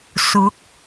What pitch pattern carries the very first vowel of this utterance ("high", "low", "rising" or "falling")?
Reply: rising